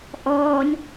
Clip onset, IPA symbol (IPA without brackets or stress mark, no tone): ʔ